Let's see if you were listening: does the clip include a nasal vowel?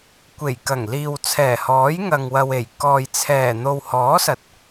no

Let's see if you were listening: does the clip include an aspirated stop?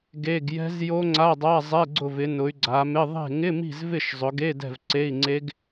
no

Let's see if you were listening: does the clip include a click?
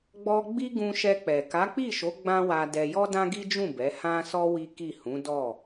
no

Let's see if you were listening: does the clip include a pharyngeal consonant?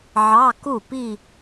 yes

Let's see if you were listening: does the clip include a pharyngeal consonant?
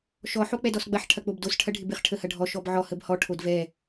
yes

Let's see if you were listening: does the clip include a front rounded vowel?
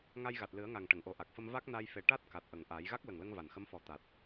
no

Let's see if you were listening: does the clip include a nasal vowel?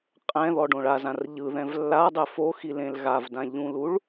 yes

